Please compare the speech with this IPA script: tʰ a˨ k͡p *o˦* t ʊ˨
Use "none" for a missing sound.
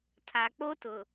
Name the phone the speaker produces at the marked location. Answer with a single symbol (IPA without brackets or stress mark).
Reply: o˦